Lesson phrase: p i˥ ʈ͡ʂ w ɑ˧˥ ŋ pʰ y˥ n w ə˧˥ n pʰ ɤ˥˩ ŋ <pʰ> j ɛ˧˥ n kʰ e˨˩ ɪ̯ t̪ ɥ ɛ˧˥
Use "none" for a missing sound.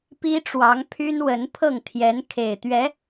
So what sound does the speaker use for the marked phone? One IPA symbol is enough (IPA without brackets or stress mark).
t̪ʰ